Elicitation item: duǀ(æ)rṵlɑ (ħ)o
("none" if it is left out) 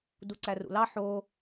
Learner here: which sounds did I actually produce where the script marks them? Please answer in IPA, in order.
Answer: æ, ħ

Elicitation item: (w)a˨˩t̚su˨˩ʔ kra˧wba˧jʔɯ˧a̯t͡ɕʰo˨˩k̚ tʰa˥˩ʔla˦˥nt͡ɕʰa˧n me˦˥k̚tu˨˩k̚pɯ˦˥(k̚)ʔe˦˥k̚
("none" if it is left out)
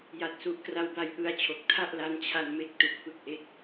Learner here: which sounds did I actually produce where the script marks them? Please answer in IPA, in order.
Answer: j, k̚

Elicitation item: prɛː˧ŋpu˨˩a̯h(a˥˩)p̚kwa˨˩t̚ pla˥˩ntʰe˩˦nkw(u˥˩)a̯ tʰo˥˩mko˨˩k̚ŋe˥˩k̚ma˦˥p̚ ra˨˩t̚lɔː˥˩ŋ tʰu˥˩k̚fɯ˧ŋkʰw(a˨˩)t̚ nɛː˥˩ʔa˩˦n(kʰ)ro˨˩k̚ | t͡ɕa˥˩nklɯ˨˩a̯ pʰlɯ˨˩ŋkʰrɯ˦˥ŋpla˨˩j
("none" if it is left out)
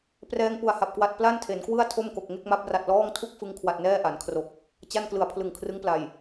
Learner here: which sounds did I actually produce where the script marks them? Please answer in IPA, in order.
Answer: a˨˩, ɯ˥˩, a˨˩, kʰ

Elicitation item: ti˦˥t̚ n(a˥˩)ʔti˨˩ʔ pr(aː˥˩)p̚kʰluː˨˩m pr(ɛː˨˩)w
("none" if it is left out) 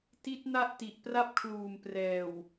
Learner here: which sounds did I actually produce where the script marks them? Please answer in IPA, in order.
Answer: a˥˩, a˥˩, ɛː˨˩

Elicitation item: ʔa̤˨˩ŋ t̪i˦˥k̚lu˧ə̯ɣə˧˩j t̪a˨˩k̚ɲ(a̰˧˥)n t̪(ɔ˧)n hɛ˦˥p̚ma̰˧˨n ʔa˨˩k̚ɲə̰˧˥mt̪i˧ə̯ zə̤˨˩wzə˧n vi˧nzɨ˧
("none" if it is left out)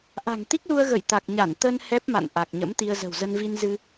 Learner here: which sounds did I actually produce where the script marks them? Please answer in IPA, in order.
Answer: a˧˩, ə˧

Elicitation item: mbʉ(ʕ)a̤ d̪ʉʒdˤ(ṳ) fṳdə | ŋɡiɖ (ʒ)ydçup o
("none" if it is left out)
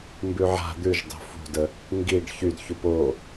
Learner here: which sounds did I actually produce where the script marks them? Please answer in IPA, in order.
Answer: ʕ, o̤, ç

